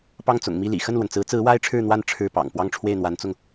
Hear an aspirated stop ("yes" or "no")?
yes